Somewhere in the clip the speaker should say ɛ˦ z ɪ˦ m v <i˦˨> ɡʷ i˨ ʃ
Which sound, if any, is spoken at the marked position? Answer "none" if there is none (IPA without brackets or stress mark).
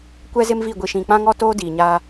i˦˨